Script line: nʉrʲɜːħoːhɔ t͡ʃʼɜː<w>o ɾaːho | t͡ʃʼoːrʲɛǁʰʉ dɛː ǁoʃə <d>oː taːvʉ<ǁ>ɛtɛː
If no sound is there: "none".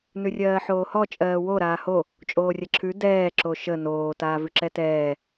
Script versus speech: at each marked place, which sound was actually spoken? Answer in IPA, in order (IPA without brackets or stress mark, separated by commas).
w, n, ǁ